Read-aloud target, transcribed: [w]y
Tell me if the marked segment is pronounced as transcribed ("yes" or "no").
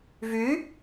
no